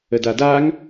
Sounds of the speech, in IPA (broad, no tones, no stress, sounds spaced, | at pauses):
ə d a d a ŋ